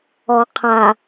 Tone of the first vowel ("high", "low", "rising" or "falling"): low